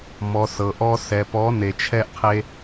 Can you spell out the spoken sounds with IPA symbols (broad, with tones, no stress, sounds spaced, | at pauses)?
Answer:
m ɔ˨ s ɤ˨ ʔ ɔ˧ s ɛ˨ p ɔ˨˦ n e˨ t͡ʃʰ ɛ˧ ʔ qʰ e˧